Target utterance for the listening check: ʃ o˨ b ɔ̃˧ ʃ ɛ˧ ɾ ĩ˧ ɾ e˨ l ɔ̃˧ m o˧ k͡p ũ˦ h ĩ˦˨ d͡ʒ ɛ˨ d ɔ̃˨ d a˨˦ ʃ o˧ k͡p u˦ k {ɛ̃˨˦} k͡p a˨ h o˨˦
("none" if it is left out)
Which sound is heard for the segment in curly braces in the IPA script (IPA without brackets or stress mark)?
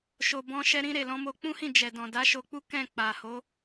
ɛ̃˦˨